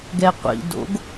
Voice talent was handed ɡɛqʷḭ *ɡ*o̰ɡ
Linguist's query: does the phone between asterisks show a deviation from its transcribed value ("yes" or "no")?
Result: yes